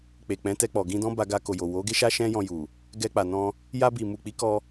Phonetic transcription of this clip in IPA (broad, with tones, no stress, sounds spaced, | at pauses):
k͡p e˨ k͡p ɛ̃˨˦ t ɛ˧ k͡p ɔ˨ ɡ ĩ˧ d ɔ̃˦ b a˧ ɡ a˧ k o˨ j o˨ w o˨˦ ɡ e˦ ʃ a˦ ʃ ɛ̃˦ j ɔ̃˧ j u˨ | ɡ ɛ˧ k͡p a˨ n ɔ̃˧ | j a˧ b i˨ m u˨ k͡p i˨˦ k ɔ˧